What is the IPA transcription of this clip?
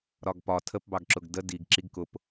ɾɒɡpɒ tʰəpbɑɡǁʊɡ də diɡ ǁiɡkʊp

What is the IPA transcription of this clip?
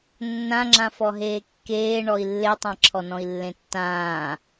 nːãŋ͡ǁãfɔɦeː kːeːɳɔi̯ lːetˤã ǁʰɔnɔ̃i̯lːẽtːãː

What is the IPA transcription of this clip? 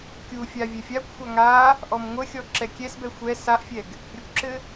kʲufʲa vʲɛfʲakʷxʷa ŋa | ʔɔmŋʷəxʲɔ ǁɛkʲɛsbɛ xʷɛ saʔfʲɛɡ | ɾʲəkʷǁɘ

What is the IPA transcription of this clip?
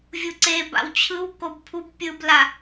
vʲuǀeba̰w t͡ɕʰɯw kobpʰub pʲɯbla

